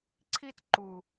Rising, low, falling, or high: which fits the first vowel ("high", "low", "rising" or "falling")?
high